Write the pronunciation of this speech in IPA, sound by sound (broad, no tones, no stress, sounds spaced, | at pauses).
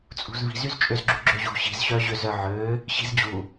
t͡sʼ ṳ z v i̤ z y z t͡ʃʼ ø z ɡ͡ǁ u ɡ͡ǁ ø ʑ ṳ ɕ i̤ z ɕ œ ʑ ø z œ ʕ ø | ɕ i̤ z d͡ʑ u